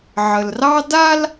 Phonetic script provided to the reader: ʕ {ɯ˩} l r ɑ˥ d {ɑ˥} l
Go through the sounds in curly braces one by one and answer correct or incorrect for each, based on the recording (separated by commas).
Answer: incorrect, incorrect